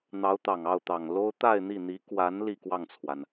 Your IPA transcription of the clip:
n̪ ɑ˧˥ ʊ̯ t̪ ɑ˨˩ ŋ ɑ˥˩ ʊ̯ t̪ ɑ˨˩ ŋ l o˥ ʊ̯ t̪ a˥˧ ɪ̯ n̪ i˥˩ n̪ i˧˥ k w a˧˥ n l i˥˧ k w ɑ˥˩ ŋ t͡sʰ w a˩ n

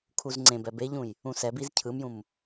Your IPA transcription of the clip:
kʰ u z ŋ͡ǀ ẽ b ɛ b e ʎ ũ j | ũ s ɛ b i z cʰ ɯ m j ũ m

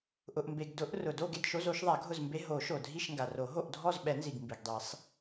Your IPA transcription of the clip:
ʔ ʊ˩ ʔ m b e˩ ɡ d ʊ˨˩˦ ʔ r ʊ˩ d o˦˨ ɡ e˦˨ d ʃ o˧˥˧ z o˨˩˦ ʃ ðˤ a˨˩˦ ɡʱ ʊ˦˨ z m b e˧˥˧ ɦ o˨˩˦ ʃ o˩ dʱ i˦˨ ʃ ŋ ɡ a˩ r o˨˩˦ ɦ o˦˨ ʔ dʱ ɔ˦˨ z ɓ ɛ˨˩˦ n z i˩ ɡ m b i˩ ɡ dˤ i˨˩˦ sˤ

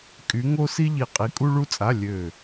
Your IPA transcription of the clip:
kʼ y˧˥ ŋ o˥ s i˥ ʎ i˦˨ qʼ i˧˥ kʼ u˥ ɭ u˥ t͡sʼ a˧˥˧ lʲ ø˦˨

